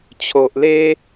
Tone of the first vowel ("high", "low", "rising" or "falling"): low